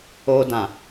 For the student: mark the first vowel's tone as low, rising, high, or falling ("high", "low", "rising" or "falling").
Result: high